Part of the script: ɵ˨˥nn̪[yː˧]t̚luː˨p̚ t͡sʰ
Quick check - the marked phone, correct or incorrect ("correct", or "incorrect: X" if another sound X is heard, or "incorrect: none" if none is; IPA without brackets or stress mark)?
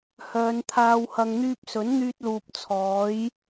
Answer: correct